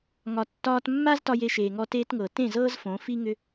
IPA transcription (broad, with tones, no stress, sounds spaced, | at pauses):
ŋ ɒ˨ tː ɒː˧ t mː a˦ z t ɒ˧ j e˧ ʃ eː˨ ŋ ɔ˧ t e˧ t ŋ ɤ˨ t ẽ˦˨ z ɤ˦ z f õ˨˦ f i˦ ŋ ʏ˦